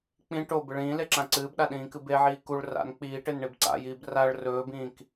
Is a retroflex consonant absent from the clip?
no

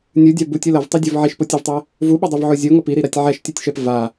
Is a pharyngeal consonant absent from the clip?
no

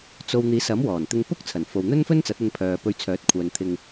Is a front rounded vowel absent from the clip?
no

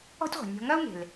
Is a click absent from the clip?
yes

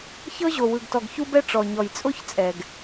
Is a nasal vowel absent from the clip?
yes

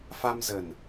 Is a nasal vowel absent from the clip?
yes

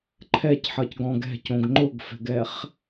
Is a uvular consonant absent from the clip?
no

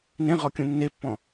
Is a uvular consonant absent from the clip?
no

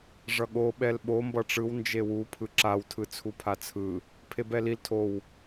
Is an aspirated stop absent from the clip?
no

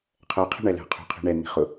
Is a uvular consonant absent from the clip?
no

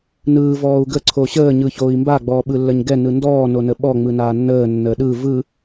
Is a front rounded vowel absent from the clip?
yes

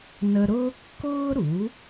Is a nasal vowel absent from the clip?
yes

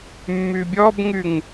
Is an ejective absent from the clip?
yes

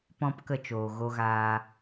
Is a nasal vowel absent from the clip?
no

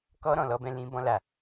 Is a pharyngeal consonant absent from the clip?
yes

